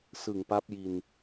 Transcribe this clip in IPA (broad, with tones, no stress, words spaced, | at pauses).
sɯ˨˩ŋpa˦˥p̚ji˧n